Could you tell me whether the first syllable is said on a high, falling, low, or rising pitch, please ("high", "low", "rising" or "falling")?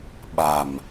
low